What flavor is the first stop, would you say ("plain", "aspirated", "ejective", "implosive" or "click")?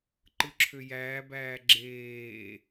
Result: click